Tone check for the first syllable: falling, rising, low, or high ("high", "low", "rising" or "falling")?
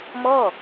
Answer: falling